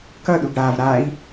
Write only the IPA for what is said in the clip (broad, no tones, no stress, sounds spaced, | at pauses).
k ʌ ɗ u ɡ ɽ a v ɾ a i̯